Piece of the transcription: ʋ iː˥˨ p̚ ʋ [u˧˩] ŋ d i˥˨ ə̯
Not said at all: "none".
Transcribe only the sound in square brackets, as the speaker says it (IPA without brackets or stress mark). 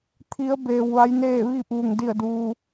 u˧˩